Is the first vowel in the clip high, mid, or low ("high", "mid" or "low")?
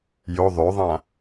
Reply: mid